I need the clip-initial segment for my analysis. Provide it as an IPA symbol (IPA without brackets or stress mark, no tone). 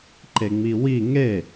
ǃ